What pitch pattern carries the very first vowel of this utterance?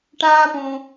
high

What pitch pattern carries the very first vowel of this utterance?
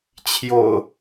low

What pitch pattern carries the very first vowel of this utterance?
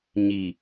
low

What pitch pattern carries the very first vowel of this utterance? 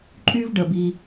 high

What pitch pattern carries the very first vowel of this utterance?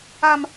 high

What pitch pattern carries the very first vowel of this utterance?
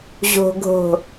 low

